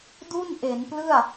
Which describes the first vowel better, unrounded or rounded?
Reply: rounded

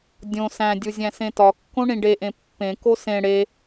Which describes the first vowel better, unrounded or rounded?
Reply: rounded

